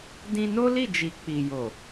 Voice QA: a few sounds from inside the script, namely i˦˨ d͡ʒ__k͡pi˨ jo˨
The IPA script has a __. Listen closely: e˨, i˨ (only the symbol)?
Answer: i˨